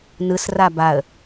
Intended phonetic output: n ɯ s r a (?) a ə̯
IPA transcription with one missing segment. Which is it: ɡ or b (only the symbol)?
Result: b